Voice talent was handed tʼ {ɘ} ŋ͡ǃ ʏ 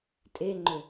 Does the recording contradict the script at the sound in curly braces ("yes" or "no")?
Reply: yes